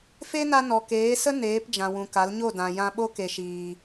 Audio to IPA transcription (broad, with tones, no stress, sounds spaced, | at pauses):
f e˦ n a˧ n ɔ˨ k eː˨˦ s ə˦ n eː˨˦ p d͡ʒ ã˨ w ũ˨ k a˨˦ l ɲ o˦˨ d ã˨ j ã˧ ɓ o˦ k e˨ ʃ iː˨